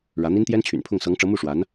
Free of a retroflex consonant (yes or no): no